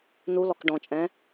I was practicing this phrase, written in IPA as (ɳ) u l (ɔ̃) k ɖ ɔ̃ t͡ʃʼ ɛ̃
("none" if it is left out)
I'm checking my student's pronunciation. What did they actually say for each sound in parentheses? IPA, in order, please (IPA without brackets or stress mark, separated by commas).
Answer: n, ɔ